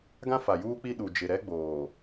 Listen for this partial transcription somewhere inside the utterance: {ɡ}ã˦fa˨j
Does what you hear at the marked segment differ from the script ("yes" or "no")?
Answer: no